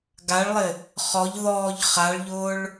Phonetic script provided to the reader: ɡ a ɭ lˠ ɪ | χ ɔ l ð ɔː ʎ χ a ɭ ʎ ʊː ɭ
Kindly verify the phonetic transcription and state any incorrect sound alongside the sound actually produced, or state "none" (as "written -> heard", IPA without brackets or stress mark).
l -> ʎ